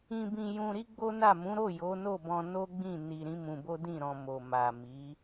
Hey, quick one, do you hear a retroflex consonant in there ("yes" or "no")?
no